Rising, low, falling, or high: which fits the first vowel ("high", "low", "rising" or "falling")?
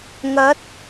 rising